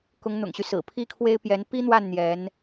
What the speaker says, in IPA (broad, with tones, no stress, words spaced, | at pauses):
kʊ˧˥ŋn̪ʊ̰˨˩ŋɕy˦ sɹ̩˨˩pʰi˥kʰwe˥ɪ̯ pjɛ˧˥n pi˥n̪wa˥˩n n̪jɛ˧˥n